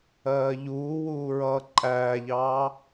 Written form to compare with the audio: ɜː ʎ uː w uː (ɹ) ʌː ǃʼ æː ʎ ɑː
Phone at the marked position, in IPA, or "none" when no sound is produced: ɹ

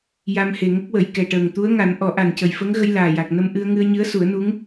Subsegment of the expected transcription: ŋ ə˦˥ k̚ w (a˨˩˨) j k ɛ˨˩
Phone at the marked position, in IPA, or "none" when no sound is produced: ə˨˩˨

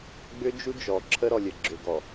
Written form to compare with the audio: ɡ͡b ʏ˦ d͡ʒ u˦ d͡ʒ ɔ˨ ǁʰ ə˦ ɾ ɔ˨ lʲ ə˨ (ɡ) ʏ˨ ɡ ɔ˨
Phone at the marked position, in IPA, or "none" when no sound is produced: ɡ͡ǁ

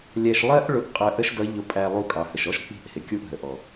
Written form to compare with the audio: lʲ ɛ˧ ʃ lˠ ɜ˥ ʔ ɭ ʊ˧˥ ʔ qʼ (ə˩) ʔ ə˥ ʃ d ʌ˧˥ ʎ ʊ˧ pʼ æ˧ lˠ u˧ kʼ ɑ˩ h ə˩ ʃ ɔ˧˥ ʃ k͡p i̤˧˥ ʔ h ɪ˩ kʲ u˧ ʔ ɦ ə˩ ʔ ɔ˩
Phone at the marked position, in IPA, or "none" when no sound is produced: ə˧˥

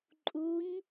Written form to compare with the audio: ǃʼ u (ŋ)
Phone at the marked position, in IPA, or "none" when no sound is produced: ɲ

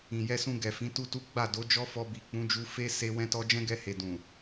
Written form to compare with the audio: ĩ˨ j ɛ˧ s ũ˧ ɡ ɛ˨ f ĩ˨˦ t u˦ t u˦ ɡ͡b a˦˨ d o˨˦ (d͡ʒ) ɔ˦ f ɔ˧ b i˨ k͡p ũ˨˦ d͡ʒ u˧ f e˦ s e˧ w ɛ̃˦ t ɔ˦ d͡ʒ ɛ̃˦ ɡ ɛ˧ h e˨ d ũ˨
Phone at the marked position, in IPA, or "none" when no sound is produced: d͡ʒ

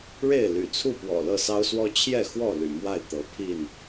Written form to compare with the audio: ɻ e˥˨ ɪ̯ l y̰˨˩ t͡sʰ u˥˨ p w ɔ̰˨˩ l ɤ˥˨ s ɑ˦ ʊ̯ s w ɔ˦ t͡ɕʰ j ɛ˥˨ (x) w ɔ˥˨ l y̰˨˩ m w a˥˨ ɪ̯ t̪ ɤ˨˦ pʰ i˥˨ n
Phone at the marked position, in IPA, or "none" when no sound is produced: x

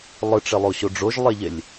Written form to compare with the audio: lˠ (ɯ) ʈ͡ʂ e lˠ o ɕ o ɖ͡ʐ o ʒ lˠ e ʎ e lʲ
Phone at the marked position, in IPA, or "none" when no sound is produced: ɯ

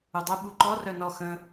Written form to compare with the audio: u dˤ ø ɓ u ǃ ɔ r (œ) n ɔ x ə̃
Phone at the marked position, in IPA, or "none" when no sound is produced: œ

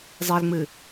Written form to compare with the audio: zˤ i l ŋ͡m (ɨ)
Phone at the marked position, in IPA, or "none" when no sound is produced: ɨ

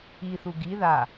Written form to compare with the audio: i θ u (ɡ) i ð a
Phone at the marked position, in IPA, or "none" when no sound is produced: ɡ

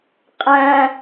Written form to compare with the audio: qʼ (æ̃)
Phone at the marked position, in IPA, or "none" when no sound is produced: æ̃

